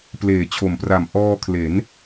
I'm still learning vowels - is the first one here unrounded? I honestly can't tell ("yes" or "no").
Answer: yes